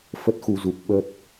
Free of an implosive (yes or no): no